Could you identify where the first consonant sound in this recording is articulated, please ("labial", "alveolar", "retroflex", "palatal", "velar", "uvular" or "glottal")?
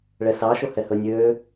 retroflex